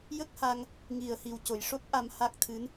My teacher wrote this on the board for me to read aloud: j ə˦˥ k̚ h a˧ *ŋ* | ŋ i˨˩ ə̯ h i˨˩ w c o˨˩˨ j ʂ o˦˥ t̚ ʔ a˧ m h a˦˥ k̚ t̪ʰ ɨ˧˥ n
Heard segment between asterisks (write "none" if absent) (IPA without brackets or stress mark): ŋ